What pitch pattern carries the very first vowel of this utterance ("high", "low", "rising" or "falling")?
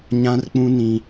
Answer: high